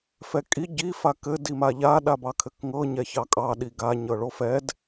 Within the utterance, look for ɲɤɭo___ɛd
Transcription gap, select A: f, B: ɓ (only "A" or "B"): A